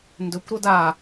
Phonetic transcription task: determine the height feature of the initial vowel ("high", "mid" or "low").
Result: mid